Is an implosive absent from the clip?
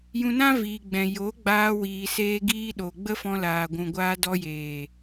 no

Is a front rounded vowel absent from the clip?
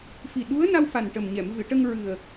yes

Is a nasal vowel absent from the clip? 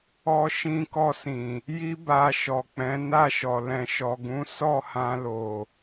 no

